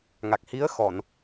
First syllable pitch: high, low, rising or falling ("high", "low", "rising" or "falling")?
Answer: low